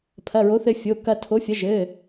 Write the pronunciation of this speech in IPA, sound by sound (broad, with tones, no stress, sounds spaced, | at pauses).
pʰ ɐ˩˧˩ ɹ o˨˥ θ ɘ˧ fʲ o˩˧˩ k ɐ˧ tʰ o˨˥ fʲ ɐ˨˥ ʒ ɘ˩˧˩